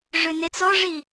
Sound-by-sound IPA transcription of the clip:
ʐ ø n e t͡s ɔ ʐ i

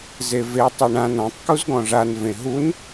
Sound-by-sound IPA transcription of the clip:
z e v e tˤ ø ɳ ã n ɔ̃ tˤ k u z ɡ ɔ̃ ʐ a n v ẽ ɦ u n

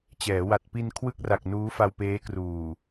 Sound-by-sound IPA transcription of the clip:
t͡ɕ ɛː˩˦ w a˨˩ t̚ p i˧ n kʰ w ɯ˥˩ k̚ r a˨˩ k̚ n uː˦˥ f a˧ w p eː˦˥ k r uː˨˩

